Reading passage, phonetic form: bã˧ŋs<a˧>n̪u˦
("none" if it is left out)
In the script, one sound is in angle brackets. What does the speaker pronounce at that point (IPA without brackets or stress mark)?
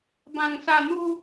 a˧